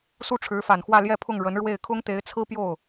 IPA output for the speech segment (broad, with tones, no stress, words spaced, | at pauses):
su˥˩ʈ͡ʂʰɻ̩˧˥fa˨˩nxwä˥˧ ljɛ˥˧pʰʊ˥˩ŋ ɻə˧˥nɻwe˥˩ɪ̯ kʰʊ˥ŋt̪e˧˥ɪ̯t͡sʰɹ̩˥ pjo˥˩ʊ̯